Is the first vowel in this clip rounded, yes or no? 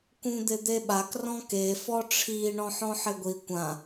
yes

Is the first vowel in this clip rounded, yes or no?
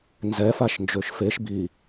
no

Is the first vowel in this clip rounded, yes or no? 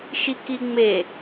no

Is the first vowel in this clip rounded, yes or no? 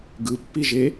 no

